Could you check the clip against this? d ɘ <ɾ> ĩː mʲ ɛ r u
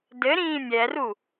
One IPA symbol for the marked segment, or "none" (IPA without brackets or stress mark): ɾ